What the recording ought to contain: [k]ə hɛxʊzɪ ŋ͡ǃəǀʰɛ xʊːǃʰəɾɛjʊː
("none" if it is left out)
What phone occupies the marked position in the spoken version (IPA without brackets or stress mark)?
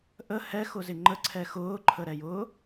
ʔ